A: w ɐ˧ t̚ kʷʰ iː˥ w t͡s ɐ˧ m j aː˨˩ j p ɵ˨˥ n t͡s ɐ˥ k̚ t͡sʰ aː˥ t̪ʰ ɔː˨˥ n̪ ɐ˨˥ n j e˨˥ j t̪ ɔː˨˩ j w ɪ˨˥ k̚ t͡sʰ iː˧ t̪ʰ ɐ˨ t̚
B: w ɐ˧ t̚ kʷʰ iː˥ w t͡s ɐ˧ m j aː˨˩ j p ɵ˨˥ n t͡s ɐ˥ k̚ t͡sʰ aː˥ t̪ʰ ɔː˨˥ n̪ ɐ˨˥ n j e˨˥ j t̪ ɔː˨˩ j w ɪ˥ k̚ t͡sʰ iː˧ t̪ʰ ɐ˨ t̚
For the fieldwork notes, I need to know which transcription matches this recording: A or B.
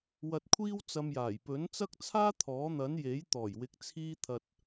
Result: A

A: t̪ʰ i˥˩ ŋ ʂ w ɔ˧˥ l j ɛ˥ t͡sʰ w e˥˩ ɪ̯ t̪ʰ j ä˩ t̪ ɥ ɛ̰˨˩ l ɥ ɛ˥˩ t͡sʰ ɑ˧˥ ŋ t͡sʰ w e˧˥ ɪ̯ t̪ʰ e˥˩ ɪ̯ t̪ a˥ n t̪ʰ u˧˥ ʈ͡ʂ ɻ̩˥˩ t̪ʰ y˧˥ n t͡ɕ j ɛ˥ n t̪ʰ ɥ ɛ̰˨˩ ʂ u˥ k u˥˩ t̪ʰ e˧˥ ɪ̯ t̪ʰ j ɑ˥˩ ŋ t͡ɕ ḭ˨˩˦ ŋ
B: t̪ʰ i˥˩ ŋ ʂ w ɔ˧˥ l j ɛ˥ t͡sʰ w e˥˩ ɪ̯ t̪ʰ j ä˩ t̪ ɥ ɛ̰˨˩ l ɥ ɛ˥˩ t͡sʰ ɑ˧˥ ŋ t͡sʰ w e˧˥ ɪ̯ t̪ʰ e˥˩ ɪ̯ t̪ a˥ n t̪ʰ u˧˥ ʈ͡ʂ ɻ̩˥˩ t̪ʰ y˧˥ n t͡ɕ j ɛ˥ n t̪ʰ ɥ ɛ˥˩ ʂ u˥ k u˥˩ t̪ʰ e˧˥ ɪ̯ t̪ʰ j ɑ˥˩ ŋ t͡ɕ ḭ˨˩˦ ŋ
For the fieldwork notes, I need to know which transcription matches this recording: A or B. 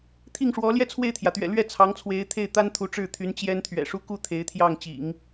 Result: A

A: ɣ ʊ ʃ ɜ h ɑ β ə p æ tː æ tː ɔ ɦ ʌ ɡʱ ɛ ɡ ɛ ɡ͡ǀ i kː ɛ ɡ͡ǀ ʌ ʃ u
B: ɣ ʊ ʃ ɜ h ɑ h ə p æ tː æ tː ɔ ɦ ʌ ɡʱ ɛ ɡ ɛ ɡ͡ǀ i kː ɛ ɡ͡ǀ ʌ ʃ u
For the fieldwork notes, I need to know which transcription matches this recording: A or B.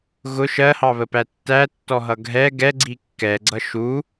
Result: A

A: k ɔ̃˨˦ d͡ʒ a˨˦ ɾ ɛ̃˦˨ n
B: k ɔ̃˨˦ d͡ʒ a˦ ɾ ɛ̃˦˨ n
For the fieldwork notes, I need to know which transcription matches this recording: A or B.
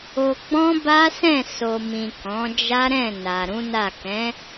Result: B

